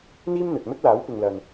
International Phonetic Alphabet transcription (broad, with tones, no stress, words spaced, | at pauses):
n̪iː˥mn̪ɵ˨t̚mɵ˥t̚laː˨˥w pɪ˨ŋlɐ˨n